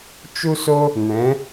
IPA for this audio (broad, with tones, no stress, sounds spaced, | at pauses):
t͡ʃ u˦ s o˦ | n ɛ̃˨˦